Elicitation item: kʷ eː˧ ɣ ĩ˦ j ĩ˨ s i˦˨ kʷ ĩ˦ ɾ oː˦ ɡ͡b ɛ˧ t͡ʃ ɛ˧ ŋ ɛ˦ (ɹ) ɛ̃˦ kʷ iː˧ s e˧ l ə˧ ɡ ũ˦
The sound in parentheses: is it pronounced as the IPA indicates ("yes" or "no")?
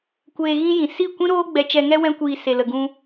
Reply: no